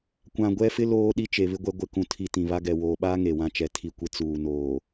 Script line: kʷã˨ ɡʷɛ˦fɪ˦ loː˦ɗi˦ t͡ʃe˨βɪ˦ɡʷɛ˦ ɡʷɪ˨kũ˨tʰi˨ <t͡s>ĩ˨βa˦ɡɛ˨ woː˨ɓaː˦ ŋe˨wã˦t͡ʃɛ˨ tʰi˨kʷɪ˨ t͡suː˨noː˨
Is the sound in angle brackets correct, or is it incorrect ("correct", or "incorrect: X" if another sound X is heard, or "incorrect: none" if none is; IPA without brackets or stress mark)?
incorrect: t